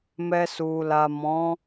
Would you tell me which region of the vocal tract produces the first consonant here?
lips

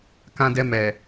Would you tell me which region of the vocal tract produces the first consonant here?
velum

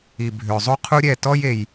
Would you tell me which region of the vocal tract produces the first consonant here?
lips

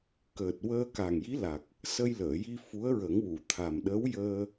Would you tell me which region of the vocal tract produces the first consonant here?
velum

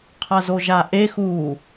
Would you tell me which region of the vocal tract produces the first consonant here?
uvula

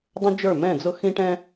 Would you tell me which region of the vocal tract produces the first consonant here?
tongue tip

